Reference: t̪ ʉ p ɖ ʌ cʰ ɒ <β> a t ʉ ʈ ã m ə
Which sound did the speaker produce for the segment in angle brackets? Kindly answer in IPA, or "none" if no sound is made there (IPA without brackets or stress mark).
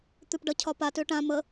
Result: p